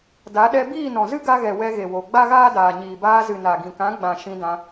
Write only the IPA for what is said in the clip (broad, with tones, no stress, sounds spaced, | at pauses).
d a˨˦ ɗ ɛ˧ b iː˦˨ n ɔ̃˨ z ɨ˦ ɡ a˧ ɣ ɛ˨ w ɛ˧ ɣ e˨ w o˨ ɡ͡b a˦ ɣ aː˦ d aː˨ ɲ iː˨ b aː˧ z ɨ˨ n a˨ ɡ ĩ˨ k ã˨˦ ɡ͡b ã˨ ʃ ĩ˧ d ã˧